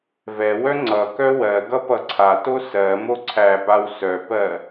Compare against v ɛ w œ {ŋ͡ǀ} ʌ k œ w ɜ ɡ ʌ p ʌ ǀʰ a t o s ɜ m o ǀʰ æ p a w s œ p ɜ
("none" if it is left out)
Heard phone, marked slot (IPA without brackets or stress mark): ŋ͡ǀ